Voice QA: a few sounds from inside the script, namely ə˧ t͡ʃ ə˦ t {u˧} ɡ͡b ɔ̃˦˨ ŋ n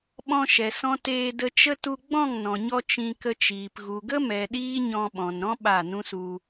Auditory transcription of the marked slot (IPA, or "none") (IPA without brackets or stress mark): u˧